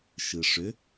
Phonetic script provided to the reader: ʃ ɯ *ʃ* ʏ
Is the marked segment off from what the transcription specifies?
yes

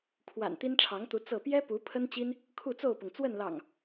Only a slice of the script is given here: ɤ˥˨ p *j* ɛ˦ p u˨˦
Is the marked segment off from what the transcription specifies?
no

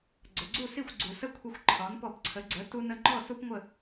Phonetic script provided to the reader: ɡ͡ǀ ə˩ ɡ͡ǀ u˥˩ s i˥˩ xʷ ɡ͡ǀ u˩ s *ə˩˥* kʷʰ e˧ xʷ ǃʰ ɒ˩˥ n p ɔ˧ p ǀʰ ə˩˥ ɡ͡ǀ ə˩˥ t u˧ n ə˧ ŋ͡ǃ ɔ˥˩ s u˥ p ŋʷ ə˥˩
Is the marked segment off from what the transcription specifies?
yes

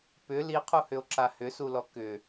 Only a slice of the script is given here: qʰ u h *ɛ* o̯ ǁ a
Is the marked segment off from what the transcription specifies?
yes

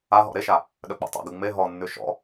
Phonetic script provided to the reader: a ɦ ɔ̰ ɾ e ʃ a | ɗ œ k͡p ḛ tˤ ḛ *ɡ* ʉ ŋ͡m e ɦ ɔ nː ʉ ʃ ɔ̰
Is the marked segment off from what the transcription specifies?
no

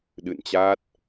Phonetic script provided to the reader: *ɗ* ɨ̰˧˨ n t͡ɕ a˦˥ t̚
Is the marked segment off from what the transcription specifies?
no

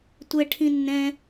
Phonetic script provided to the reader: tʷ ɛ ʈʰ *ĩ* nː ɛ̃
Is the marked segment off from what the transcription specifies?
no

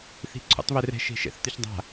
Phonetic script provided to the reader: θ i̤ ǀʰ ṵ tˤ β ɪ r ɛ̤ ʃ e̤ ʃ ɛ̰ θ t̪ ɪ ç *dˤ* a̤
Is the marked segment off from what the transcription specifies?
no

